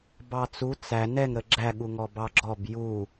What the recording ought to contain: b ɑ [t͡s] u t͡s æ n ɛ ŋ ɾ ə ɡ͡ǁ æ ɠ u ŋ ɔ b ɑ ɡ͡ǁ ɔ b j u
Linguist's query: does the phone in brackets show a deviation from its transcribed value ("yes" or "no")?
no